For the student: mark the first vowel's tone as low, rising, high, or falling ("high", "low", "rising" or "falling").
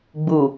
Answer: low